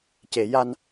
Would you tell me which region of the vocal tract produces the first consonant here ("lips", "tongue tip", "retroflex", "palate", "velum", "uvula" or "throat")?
palate